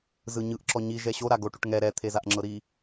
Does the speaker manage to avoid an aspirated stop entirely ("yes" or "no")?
no